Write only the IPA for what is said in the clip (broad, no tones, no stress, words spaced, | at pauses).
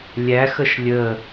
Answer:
lʲæxəʃ lʲə